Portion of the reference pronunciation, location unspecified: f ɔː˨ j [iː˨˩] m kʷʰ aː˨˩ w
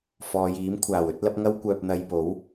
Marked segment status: incorrect: iː˨˥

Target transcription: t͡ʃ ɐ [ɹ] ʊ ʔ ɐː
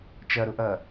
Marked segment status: incorrect: ɾ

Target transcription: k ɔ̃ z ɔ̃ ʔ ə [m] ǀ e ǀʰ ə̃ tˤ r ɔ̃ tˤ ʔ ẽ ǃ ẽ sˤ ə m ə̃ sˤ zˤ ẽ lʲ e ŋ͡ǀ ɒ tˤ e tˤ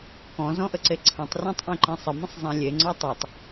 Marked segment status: incorrect: none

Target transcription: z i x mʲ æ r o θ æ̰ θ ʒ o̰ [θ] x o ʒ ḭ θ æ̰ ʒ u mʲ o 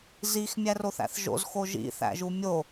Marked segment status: incorrect: z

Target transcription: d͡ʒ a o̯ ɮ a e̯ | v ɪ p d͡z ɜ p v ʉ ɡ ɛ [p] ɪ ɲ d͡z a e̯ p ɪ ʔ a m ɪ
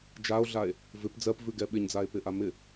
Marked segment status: incorrect: ɓ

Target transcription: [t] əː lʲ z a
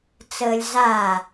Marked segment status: incorrect: t͡s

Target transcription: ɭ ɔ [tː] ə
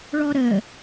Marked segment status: incorrect: ɾ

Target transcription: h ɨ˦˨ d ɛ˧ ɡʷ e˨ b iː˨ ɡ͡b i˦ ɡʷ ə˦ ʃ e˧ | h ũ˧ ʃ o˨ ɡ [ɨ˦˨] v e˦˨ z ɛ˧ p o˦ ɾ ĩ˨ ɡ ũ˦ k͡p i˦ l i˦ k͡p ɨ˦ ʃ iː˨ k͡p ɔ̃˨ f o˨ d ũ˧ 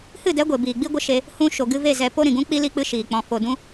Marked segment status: incorrect: ɨ˧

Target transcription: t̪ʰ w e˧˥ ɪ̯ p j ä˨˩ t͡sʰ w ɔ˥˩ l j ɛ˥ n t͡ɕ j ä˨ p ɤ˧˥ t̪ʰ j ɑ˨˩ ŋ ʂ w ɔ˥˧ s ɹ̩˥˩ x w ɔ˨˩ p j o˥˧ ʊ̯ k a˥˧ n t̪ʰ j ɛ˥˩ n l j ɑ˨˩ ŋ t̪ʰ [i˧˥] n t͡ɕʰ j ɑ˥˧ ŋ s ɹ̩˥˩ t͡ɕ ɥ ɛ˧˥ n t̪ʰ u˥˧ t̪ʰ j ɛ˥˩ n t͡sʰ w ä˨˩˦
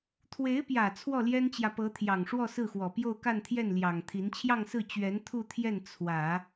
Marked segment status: correct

